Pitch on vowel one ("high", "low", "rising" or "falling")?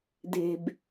low